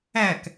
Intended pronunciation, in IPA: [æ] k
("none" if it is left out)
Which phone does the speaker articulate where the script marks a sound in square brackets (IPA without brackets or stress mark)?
æ